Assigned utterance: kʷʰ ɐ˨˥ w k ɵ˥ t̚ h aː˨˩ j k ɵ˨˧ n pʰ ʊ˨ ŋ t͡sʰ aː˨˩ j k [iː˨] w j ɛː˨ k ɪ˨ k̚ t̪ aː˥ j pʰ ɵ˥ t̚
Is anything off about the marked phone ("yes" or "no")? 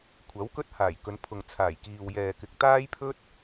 no